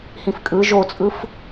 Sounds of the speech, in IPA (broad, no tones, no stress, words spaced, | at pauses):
hĩfkʼɯ ʒot͡sʼɯf